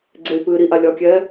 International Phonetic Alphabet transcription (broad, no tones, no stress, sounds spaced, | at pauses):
ɡ͡ǀ e y̯ p ɨː ɾ i ʔ a lʲ ɒ kʲ ɛː